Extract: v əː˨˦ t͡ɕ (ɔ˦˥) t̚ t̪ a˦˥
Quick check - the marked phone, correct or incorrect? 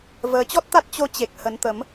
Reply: correct